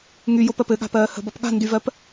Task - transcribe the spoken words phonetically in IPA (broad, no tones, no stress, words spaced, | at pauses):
ŋyjopɜp ɘɠa̤pɜː hə̤bʌp ɠa̤ ndyvɜp